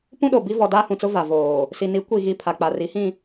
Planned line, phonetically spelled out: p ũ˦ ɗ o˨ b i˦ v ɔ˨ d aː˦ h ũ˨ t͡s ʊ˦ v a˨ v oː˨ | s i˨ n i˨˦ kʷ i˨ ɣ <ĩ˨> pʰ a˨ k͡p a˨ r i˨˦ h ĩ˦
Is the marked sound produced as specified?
no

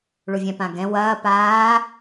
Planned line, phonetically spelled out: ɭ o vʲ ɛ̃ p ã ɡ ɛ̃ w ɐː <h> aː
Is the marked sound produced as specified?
no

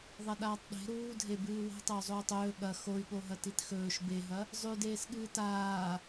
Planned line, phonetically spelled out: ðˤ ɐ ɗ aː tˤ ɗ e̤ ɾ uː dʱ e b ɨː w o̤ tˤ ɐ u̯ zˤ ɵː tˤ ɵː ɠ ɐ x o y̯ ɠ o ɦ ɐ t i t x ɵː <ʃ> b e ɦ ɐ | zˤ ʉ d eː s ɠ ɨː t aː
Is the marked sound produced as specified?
yes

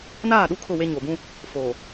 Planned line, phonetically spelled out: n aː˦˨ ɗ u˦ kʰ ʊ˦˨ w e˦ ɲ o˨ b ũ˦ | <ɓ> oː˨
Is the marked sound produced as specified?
no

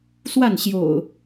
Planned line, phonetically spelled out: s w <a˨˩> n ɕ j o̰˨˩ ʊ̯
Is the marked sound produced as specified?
no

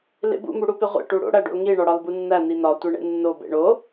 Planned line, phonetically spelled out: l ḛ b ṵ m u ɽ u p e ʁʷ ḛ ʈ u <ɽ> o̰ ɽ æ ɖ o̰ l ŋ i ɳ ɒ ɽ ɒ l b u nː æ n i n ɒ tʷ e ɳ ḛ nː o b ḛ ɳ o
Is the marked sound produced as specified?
yes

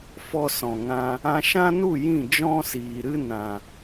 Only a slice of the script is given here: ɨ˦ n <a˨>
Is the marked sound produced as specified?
no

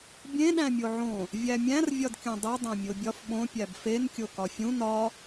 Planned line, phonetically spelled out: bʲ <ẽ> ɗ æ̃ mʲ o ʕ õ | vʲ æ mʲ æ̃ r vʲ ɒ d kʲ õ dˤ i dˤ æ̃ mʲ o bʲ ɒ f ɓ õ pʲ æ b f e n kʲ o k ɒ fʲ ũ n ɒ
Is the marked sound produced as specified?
yes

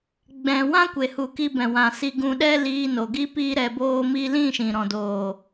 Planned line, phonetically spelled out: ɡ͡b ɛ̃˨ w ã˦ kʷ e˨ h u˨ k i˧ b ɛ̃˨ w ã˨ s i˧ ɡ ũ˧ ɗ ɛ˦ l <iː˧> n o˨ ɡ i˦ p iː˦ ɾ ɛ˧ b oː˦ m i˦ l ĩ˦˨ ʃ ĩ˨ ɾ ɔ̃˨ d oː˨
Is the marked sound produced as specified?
yes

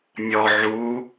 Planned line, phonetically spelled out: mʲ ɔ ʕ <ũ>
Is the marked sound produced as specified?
no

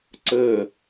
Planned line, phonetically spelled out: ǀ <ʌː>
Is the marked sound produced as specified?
no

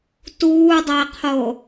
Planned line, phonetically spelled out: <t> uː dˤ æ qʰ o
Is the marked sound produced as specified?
yes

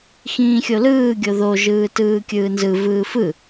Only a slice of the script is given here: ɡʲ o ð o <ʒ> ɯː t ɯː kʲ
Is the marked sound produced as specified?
yes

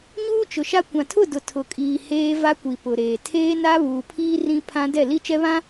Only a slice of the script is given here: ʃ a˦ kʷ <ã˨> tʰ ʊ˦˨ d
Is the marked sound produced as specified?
yes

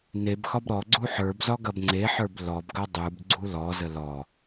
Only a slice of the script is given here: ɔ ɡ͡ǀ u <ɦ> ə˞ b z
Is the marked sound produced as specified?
no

